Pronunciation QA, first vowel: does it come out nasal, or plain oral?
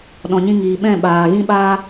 nasal